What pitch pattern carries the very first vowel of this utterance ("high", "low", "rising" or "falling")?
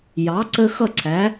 rising